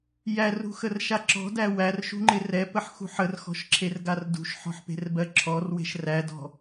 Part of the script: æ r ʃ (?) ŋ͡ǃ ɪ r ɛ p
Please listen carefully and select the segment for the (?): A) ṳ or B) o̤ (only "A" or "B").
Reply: A